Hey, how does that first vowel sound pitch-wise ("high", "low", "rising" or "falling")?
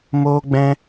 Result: high